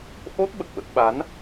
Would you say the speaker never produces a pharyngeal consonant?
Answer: yes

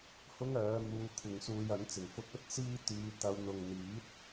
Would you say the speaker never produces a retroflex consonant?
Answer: yes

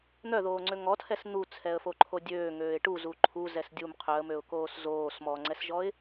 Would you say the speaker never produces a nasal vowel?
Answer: yes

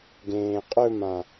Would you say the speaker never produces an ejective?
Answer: no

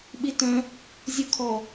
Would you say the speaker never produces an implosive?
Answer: no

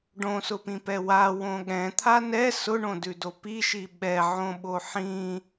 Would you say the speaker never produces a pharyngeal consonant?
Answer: no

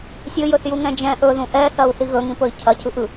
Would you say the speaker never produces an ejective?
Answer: yes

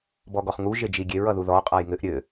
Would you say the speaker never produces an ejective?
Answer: no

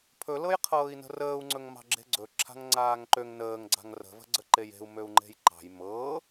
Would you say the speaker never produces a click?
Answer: no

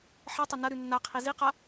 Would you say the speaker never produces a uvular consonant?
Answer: no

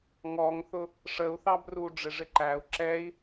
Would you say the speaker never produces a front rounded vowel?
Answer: yes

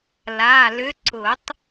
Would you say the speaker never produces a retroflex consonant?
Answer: yes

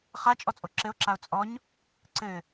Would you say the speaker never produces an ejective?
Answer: no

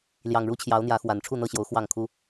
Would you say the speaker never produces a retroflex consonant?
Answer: no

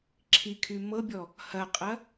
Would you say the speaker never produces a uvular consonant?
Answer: no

